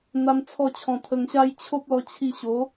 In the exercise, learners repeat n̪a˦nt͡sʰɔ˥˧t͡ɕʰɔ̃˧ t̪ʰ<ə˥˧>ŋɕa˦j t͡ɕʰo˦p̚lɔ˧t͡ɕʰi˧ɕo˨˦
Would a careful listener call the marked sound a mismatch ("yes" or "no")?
yes